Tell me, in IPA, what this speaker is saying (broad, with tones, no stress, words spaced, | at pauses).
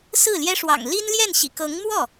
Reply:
sɹ̩˥˩ljɛ˥ʂwɑ̰˨˩ŋ li˥nljɛ˥˩nɕḭ˨˩ kɤ˧˥ŋmwɔ˥˩